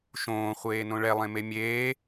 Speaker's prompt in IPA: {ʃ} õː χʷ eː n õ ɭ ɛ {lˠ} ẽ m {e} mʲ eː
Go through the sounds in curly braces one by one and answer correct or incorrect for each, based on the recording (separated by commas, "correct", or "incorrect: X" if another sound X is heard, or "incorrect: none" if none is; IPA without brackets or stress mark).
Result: correct, correct, correct